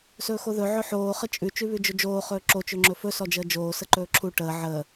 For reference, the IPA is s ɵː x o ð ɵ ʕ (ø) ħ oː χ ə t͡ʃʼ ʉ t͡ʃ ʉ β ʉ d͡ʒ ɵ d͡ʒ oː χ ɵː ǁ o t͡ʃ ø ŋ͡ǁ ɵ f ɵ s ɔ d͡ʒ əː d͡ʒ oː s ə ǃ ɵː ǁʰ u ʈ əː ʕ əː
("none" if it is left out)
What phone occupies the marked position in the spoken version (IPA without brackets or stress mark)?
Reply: ɵ